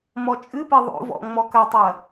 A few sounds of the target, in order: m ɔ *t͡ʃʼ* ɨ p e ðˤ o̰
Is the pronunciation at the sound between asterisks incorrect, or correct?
correct